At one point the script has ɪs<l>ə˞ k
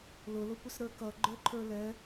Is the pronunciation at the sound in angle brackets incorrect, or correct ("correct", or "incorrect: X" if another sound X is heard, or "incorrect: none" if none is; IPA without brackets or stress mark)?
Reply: incorrect: ɾ